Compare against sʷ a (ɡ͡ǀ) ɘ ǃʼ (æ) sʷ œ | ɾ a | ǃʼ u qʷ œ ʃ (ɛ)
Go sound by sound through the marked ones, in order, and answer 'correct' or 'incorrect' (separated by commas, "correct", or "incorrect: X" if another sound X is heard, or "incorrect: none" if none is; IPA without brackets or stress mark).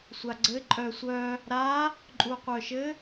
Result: correct, incorrect: œ, incorrect: ɘ